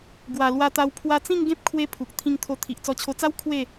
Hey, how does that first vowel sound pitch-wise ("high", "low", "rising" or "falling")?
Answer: low